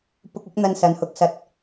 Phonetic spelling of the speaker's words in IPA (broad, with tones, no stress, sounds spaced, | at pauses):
p ʊ˧ k̚ ɪ˨˥ k̚ n̪ ɐ˧ n s ɐ˨˧ n h ʊ˨˥ k̚ s ɐ˧ t̚